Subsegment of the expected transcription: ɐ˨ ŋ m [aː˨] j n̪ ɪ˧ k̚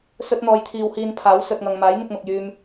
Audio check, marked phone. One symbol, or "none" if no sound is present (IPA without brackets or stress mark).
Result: aː˨˥